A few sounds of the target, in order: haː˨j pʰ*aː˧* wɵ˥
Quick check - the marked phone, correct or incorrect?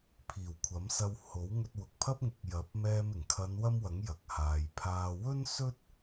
correct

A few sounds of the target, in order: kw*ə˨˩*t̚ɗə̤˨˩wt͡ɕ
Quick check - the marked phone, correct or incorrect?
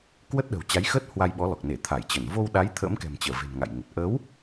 incorrect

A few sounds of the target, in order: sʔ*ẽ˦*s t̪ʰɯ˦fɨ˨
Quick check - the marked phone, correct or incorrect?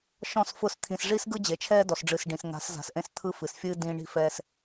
correct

